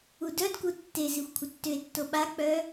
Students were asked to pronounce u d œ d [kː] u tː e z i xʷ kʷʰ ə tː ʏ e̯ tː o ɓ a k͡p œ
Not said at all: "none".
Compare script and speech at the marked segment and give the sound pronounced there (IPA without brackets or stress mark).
k